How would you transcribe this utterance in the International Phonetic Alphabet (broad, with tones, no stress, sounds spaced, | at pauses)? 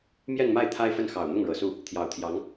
m j ɛ˥˧ n m a˥˩ ɪ̯ t̪ʰ a˥ ɪ̯ f ə˥˩ n x ɑ˨˩ ʊ̯ n̪ ʊ˥˩ ŋ ɻ ɤ˨˩ s u˥˩ | t̪ʰ j ɑ˨˩ ʊ̯ t̪ʰ j ɑ˧˥ ŋ